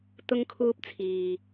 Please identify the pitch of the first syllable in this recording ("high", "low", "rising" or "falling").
high